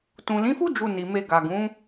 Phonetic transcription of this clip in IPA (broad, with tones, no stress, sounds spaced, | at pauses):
t ũ˨ l ĩ˨˦ f u˦ d͡ʒ u˧ n i˨ m e˧ ɡ a˨ ɡ ũ˨˦